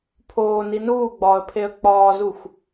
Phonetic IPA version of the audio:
pʰ oː n i n uː ɡ͡b ɒː ə̯ pʰ e ə̯ k͡p ɒː z u xʷ

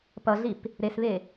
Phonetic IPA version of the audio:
p ʌ ɮ i p | ɾ e s β e

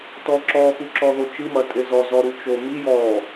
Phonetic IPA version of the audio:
t ɔ ǁ ɔ x u ǁ ɔ ð o t͡ʃ ɨ m ɐ tʼ e z ɔ z ɔ ɾ u t͡ʃ o m i j ɔ

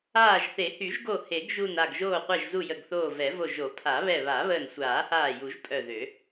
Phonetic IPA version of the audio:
aː˧˩ ʒ θ e˨˩˦ h y˨˩˦ ʒ ɡ o˧˩ h e˨˩˦ ɡ ʒ u˧˩ n a˧˩ ɡ ʒ oː˧˩ qʷ ɛ˧˩ ʒ z u˧˩ j ə˧˩ ɡ θ oː˧˩ v ɛ˨˩˦ v o˧˩ ʒ o˨˩˦ pʰ a˨˩˦ β ɛ˧˩ β a˨˩˦ β əː˧˩ n sʷ aː˨˩˦ h aː˧˩ j u˨˩˦ ʒ pʼ œ˧˩ ð ø˨˩˦

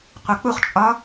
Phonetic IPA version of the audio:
qʷ ɑ k͡p u χ t͡ʃʼ ɒ

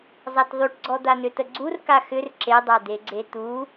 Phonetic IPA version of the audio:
zˤ a t ðˤ y ʈ ɡ͡ǀ ɔ d̪ a n ʏ t ə ɡ͡ǀ u r k a x ʏ r ǁ e dˤ a d̪ e ɡ͡ǀ e t̪ u

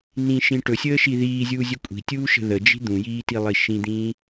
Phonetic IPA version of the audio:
n ĩ ʃ ĩ ʈ ɵ sʲ əː ʃ i ð iː zʲ uː zʲ ɵ kʷʼ i̤ tʲ uː ʃ ə̤ ð ə d͡ʒ i̤ d̪ ũ j iː t i lˠ i ʃ ĩ d̪ ĩː

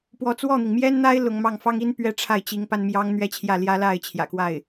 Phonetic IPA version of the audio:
p w ɔ˧˥ t͡s w ɔ˥˩ n̪ i˩ ŋ m j ɛ˥ n n̪ a˥ ɪ̯ l ʊ˧˥ ŋ m ɑ˥˩ ŋ f ɑ˥ ŋ i˥ n p ɥ ɛ˥ ʈ͡ʂʰ a˥˩ ɪ̯ t͡ɕ i˧˥ ŋ p a˥ n m j ɑ˥ ŋ n̪ ɥ ɛ˥ t͡ɕʰ j ä˥˩ l j ä˥ l a˥˩ ɪ̯ t͡ɕʰ j ä̰˨˩ k w a˥˩ ɪ̯

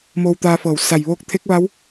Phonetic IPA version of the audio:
m oː˧ w t̪ aː˧ f ɤː˧˩ w s a˧˩ j ʋ oː˧˥ k̚ t̪ʰ e˧˥ k̚ ʋ a˧˥ w

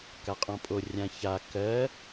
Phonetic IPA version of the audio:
k a qʼ ɔ̃ pʼ o rʲ ã ç a k ɜ

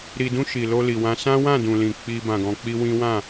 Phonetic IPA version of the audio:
ɾ i˨ d ũ˧ ʃ i˨ l o˧ l i˨ w ã˧ s ã˦ w ã˦˨ d ũ˨ l ĩ˨ k͡p i˧ b ã˨ ɡ ɔ̃˨ k͡p i˧ w ĩ˦ w ã˦˨

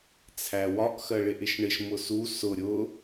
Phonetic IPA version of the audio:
t͡sʰ æ w ɒ ʔ x ɜ ɭ ɪ ʔ ɪ ʃ ɳ ɪ ʃ m ʊ s u s ʊ ɾʲ ʊ

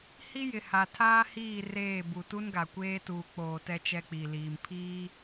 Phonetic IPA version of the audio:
h i˦ j ɪ˨ h a˨ tʰ aː˦ h iː˦˨ r eː˦˨ b u˨ t u˦ n ɡ a˨ kʷ eː˦ t uː˨ k͡p oː˨ t ɛ˦ t͡ʃ ɛ˦ k͡p i˨ l iː˨ m pʰ iː˦

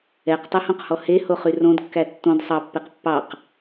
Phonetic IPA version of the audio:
ɛ q tˤ e h õ q h ɔ h e h o χ y r õ d kː æ tː õ d sˤ ɑ pː e q pː ɑ q

